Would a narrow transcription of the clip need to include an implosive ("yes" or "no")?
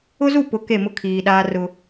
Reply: yes